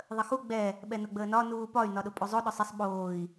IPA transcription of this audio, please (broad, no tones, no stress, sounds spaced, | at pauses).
ðˤ ə x u ɡ͡b ɛ | ɓ ɛ n ʊ ɡ͡b əː n ɒ n uː p ɒ y̯ n ɒ ɗ ʊ pʼ u zˤ o ɗ ʊ sˤ ə sˤ ɓ oː i̯